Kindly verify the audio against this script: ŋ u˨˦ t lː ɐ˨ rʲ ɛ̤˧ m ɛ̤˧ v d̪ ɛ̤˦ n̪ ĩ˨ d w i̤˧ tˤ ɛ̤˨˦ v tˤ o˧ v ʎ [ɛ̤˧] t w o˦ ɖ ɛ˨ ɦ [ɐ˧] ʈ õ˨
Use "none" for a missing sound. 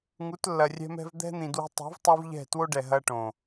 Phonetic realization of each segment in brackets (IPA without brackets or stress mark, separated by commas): ɛ̤˦˨, ɐ˧